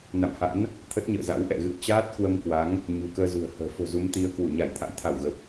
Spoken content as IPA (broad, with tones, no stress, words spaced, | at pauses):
na̰˧˨mha̰˧˥n | t̪ʰə˦˥t̚ɲə̰ː˧˨za̰˧˥w ʔɛ̰˧˨ɣɨ̰˧˨ə̯ t͡ɕaː˦˥t̚kwə˧mkwa˨˦ŋ | ɲṳ˨˩kəː˧zṳ˨˩ə̯hə̤ː˨˩ fo̤˨˩zu˨˦mt̪i˨˦ə̯ kwu˧˩ɲa˧˩jt̪ʰa̰˧˥jt̪ʰa˧˩w ɣə˨˩p̚